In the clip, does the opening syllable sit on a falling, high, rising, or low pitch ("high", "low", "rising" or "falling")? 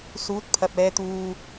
rising